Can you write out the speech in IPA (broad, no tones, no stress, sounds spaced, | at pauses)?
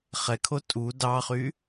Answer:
χ ɛ kʰ o tʼ u d ɑ χ y